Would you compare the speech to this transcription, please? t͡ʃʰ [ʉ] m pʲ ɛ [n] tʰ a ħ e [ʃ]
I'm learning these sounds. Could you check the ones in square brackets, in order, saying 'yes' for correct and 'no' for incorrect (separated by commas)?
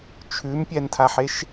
yes, yes, yes